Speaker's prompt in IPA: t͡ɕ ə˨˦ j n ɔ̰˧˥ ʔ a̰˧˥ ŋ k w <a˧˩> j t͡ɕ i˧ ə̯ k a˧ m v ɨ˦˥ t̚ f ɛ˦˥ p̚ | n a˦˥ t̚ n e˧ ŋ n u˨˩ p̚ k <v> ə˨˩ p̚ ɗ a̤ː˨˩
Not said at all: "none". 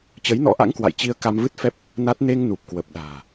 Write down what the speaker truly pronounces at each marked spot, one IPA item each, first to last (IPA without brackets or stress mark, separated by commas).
a̰˧˨, w